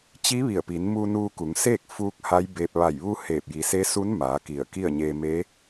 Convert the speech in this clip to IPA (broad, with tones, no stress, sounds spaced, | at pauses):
t͡ɕ i˧˥ ʋ i˧˩ ə̯ p i˩˧ n m uː˧ n uː˧ k u˩˧ ŋ s eː˥˨ k̚ f uː˧ k̚ h a˧˥ j b eː˧ p̚ ʋ a˧˩ j ʋ u˧ h eː˧˩ p̚ j i˩˧ s e˧˥ s u˧˥ n m aː˩˧ k i˧˩ ə̯ k i˥˨ ə̯ ɲ eː˧ m e˧˥